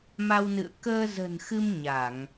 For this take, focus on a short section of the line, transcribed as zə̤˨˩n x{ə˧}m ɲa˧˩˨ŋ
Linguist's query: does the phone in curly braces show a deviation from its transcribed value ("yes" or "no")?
yes